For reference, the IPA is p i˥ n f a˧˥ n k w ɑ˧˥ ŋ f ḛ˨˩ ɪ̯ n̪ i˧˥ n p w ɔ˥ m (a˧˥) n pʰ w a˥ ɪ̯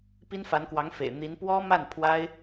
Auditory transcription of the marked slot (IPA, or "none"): a˥˩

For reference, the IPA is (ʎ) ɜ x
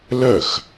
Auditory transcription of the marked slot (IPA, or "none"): l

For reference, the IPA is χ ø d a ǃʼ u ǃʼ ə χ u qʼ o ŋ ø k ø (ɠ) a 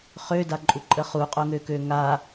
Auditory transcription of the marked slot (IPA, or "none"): ŋ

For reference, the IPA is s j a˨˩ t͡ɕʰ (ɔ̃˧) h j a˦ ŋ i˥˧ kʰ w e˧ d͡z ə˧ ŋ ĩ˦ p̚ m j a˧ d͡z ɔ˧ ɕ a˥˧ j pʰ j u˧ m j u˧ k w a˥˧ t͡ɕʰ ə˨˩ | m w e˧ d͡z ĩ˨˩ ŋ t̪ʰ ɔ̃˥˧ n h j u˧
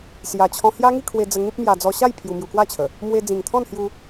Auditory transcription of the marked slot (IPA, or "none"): ɔ̃˧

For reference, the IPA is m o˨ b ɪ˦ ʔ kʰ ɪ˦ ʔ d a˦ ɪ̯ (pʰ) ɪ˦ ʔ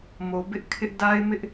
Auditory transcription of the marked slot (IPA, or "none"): m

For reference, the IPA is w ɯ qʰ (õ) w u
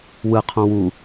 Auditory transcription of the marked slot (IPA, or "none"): õ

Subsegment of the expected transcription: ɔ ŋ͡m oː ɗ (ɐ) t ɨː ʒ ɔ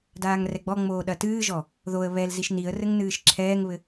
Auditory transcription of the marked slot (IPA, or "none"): ɐ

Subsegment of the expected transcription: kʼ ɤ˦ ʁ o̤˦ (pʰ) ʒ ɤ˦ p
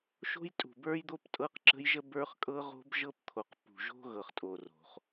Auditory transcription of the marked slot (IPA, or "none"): b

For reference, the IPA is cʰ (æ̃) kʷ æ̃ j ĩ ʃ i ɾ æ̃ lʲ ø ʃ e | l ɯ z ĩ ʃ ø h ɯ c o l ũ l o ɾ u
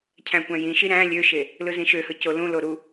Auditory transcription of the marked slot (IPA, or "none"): æ̃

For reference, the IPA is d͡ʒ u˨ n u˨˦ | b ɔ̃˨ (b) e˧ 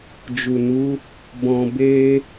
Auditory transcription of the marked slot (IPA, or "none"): b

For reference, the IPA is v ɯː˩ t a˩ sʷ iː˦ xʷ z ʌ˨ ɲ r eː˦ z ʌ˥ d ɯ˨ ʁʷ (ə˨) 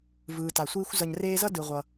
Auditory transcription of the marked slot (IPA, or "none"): ʌ˨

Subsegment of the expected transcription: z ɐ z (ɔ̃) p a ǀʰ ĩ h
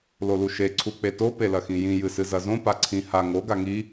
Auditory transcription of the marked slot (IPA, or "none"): õ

